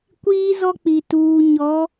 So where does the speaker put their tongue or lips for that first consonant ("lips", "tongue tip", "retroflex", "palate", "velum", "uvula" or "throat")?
velum